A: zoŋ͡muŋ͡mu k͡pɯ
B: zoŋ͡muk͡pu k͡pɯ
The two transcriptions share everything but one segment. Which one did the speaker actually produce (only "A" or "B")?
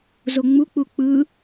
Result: B